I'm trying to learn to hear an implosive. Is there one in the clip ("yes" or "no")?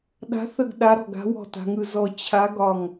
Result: yes